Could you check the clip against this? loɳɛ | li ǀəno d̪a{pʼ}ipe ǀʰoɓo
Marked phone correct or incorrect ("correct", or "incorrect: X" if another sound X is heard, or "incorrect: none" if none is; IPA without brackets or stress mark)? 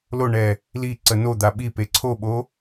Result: incorrect: ɓ